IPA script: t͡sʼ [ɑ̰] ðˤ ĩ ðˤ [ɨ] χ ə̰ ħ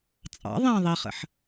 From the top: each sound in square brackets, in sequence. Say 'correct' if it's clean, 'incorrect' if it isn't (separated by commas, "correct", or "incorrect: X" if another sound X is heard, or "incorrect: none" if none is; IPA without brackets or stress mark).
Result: correct, incorrect: i